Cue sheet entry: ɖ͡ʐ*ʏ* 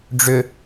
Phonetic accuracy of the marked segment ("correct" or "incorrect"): correct